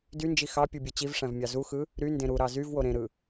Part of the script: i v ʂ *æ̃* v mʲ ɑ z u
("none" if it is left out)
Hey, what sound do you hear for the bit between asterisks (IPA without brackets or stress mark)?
æ̃